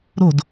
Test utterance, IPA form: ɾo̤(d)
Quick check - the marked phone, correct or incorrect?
correct